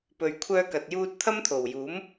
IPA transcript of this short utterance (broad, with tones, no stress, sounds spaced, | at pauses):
p ɵ˨ ɥ kʷʰ œː˧ k ɐ˨ t̚ j uː˧ t̚ t̪ʰ ɐ˥ m t̪ʰ o˨˩ w j uː˨˥ m